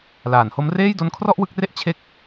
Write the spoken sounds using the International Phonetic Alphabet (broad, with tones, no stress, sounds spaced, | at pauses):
l aː˩˦ n h o˦˥ m r eː˥˩ j d o˦˥ n kʰ r ɔ˥˩ ʔ w ɯ˦˥ k̚ r e˥˩ ʔ t͡ɕʰ e˥˩ k̚